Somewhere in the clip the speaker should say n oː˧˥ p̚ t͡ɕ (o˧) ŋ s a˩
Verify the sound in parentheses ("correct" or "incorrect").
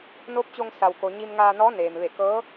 correct